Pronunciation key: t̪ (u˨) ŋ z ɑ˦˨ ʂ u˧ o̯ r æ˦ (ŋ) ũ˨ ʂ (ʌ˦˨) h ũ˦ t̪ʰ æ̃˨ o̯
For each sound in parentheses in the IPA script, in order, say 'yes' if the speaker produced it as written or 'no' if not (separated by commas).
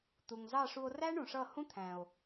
yes, no, yes